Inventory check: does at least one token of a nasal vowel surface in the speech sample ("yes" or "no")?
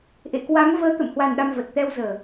no